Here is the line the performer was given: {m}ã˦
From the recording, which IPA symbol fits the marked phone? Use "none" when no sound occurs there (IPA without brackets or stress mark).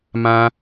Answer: m